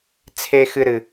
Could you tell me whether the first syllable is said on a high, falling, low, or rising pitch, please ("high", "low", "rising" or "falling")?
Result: high